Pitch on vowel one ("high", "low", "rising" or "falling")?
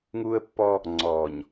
high